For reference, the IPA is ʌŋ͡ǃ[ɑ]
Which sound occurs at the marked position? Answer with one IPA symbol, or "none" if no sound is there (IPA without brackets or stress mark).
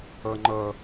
ʌ